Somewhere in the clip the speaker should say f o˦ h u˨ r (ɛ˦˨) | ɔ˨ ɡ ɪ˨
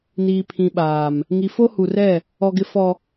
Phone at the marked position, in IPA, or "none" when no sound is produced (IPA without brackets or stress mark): ɛ˦˨